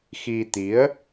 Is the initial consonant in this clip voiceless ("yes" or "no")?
yes